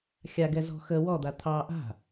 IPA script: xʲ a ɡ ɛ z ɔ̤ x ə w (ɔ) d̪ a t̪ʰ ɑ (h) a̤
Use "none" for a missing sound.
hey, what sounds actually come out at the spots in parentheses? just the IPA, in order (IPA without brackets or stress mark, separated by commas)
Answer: ɔ, ʔ